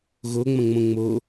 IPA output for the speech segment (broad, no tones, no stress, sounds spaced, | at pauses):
ɣ o ŋ͡m ɐ̃ ŋ͡m õ ŋ͡m o